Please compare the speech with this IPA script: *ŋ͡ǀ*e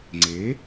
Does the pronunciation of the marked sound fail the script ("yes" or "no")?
no